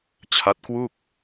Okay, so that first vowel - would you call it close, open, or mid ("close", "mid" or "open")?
open